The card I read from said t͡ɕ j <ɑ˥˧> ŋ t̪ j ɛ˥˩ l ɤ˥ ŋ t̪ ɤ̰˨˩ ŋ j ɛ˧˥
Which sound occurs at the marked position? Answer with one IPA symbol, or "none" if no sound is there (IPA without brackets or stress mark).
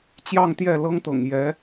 ɑ˥˧